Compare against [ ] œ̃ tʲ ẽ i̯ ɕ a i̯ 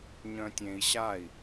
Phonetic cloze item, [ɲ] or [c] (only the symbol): ɲ